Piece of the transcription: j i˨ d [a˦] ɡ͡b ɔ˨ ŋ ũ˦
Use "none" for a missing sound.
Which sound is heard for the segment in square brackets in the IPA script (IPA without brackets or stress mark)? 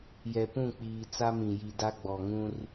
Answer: a˦